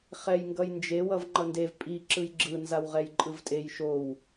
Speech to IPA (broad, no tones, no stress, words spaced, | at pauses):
χɛjŋɡʌjnd͡ʒe wʌvŋ͡ǃʌndev pʼi ǁɯjɡ͡ǁɯ nzawʁɛjǃʼɯvtʼej ʃow